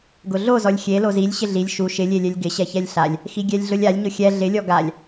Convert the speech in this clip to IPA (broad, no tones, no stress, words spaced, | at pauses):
ɡʊɮozɔlʲ xʲe lozilʲ ɕɪɮilʲ ʃu ʃɪlʲelʲɛlʲ ɡɪɕɛçɛlʲ ɬalʲ | xiɡʲɛlʲɮʊlʲalʲ ɲʊxʲɛ ɮɪlʲɔ ɡalʲ